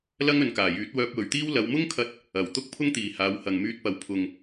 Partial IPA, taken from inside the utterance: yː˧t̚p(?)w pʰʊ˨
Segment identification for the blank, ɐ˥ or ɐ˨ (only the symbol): ɐ˨